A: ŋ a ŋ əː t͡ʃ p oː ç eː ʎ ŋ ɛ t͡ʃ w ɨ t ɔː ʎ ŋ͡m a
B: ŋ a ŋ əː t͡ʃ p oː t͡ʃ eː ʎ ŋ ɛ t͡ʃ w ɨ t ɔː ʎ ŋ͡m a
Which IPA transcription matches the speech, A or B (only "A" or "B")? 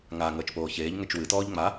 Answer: A